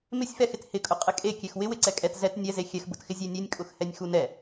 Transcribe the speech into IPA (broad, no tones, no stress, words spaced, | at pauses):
mɪsʲfɛxɪt hɪkʼʊ qʼɪkʼekʲex wɪwɪǀɛ kʼɛt zɛt nʲɛ zexʲɛxbʊtxɪ zʲenʲenʲkʼʊxhɛnʲ xunɛ